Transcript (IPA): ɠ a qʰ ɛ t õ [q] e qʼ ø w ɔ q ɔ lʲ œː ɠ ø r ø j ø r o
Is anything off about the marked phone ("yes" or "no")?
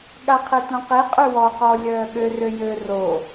no